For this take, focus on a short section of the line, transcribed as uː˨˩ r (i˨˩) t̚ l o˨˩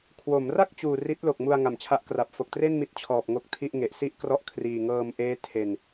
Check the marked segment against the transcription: incorrect: i˦˥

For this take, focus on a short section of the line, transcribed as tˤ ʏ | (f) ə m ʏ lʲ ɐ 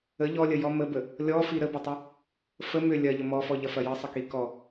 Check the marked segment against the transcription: correct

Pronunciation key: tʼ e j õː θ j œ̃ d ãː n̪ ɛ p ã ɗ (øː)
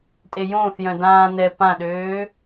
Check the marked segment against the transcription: correct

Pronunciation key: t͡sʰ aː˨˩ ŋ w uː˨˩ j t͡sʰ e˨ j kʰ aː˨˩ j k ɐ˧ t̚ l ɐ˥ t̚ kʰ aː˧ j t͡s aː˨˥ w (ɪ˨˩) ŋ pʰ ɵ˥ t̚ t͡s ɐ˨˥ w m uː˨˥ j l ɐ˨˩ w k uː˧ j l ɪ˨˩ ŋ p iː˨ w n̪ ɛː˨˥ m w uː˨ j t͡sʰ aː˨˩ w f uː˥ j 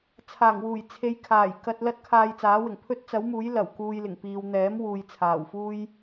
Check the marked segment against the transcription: correct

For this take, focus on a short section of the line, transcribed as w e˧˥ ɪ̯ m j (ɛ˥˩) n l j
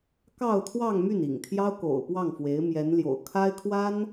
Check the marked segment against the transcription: incorrect: ɛ˧˥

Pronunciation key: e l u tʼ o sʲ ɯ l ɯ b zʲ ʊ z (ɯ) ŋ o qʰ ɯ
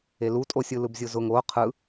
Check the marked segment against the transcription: incorrect: ʊ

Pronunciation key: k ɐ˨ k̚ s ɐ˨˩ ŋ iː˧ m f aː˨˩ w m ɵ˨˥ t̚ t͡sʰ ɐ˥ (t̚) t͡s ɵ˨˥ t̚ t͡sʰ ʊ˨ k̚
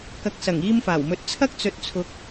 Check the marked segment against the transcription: incorrect: k̚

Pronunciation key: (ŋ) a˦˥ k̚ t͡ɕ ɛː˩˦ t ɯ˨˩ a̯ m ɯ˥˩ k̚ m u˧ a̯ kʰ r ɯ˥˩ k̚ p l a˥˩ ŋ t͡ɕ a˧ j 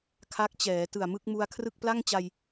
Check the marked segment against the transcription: incorrect: kʰ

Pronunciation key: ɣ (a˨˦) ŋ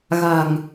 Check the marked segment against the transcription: incorrect: a̤˨˩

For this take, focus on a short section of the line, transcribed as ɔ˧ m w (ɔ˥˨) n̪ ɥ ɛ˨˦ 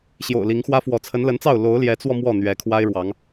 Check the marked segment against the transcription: correct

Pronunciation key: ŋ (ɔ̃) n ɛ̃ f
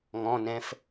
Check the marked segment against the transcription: correct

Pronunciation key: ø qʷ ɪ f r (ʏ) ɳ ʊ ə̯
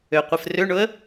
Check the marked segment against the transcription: correct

